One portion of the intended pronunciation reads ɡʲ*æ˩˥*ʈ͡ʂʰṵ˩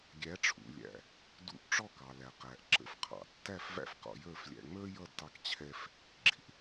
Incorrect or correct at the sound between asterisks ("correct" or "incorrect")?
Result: correct